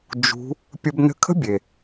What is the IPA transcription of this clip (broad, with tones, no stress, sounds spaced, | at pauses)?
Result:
d͡ʒ ṳ˧˥ | pʲ ə˧ b n ə̤˧˥ kʰ ə̤˥ bʲ e˩